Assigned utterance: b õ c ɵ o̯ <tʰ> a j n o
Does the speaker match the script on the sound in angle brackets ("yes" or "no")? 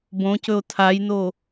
yes